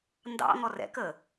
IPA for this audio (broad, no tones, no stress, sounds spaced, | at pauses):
n d ɑ̰ ŋ ɔ r ɛ̰ k ə